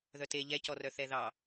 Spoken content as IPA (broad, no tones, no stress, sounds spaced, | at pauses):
ð œ t e ʎ ɛ c ɔ r œ θ ɛ ð ɑ